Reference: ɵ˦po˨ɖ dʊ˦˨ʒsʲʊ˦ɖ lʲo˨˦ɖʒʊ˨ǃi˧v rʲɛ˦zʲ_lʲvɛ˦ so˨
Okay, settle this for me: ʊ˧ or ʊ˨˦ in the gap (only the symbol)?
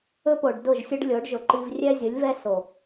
ʊ˨˦